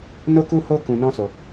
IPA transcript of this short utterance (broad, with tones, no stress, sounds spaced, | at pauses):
n o˦ k u˦ h o˦ k ũ˧ n ɔ̃˦ s o˧